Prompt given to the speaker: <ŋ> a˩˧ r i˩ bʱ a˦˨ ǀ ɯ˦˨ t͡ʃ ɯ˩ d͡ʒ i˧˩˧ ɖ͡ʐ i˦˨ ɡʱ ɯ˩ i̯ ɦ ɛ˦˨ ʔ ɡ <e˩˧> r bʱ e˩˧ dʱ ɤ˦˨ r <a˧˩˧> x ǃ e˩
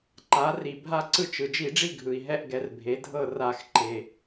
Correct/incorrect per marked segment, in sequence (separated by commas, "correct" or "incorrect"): incorrect, incorrect, correct